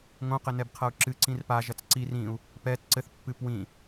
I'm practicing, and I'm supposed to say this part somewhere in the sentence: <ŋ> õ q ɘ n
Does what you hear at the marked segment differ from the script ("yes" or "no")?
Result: no